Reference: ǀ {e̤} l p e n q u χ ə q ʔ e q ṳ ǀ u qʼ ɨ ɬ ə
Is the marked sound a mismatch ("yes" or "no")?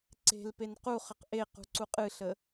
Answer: no